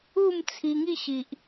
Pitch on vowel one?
falling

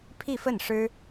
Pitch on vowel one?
falling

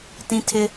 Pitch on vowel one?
high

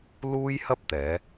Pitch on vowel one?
high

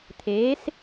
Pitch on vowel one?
rising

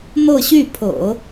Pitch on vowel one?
falling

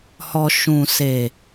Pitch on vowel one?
low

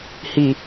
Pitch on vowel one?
low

